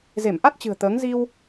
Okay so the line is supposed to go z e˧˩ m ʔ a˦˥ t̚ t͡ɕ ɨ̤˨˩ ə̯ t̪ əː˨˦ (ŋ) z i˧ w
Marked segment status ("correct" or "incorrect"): correct